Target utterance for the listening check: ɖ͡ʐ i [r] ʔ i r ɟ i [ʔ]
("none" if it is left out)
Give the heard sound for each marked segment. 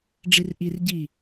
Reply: r, none

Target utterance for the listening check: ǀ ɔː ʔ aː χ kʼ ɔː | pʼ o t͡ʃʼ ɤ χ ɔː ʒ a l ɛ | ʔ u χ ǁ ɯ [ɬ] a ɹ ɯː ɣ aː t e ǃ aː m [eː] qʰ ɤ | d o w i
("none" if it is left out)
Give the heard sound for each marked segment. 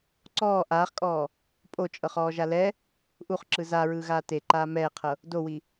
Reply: z, ɛː

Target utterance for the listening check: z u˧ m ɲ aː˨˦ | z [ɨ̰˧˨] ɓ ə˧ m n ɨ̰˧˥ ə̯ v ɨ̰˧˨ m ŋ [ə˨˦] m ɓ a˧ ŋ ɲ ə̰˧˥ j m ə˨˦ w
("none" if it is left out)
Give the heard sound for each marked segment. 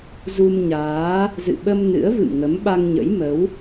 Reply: ɨ̰˧˨, ə˨˦

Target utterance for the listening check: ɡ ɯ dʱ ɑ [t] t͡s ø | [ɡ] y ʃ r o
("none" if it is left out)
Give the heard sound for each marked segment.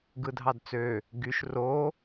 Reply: d, ɡ

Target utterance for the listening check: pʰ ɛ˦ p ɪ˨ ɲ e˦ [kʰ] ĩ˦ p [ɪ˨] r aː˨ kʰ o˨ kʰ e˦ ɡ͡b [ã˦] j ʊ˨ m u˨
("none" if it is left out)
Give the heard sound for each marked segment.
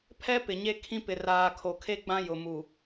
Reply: kʰ, ɪ˨, ã˦

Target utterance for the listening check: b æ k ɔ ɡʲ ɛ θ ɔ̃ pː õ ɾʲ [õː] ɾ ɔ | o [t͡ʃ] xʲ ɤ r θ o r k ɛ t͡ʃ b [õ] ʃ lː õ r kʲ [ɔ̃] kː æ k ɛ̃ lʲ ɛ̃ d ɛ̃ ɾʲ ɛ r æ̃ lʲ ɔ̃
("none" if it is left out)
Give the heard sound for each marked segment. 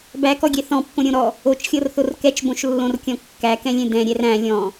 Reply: õ, t͡ʃ, õ, ɔ̃

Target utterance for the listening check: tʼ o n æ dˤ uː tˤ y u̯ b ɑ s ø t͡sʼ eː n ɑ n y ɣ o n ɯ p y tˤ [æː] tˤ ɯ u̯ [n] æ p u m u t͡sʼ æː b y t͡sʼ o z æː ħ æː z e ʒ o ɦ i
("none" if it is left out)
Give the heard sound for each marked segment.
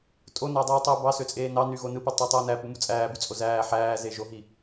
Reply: æ, n

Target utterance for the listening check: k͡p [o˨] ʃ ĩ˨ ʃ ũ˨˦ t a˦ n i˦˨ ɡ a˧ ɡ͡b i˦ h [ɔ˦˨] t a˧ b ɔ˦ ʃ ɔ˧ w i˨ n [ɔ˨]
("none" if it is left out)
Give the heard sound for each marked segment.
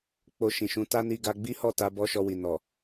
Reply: o˧, ɔ˦˨, ɔ˨

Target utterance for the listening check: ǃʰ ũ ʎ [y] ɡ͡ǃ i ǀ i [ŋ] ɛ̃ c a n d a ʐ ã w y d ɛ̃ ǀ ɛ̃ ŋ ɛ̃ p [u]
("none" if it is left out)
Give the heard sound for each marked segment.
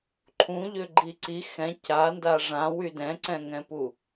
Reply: ø, x, u

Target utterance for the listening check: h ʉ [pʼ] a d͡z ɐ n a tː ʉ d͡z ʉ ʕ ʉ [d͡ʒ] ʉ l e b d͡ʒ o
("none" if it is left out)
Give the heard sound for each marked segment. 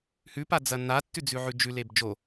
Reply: p, d͡ʒ

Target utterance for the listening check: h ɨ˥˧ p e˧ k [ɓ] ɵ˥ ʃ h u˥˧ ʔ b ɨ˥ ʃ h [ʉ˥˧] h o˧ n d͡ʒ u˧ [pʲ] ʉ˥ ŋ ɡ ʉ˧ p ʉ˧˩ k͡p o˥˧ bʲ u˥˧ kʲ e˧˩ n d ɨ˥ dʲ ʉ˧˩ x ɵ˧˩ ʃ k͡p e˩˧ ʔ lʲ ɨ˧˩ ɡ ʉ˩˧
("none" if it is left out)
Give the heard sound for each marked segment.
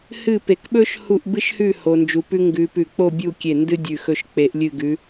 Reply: ɓ, ʉ˥˧, p

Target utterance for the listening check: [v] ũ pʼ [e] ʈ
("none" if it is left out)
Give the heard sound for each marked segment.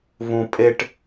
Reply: v, e

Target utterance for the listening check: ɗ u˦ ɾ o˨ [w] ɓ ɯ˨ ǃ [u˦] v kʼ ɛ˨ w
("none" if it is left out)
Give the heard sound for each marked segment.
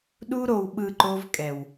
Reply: w, o˦

